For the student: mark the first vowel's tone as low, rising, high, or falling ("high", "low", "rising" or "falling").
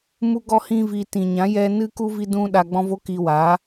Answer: high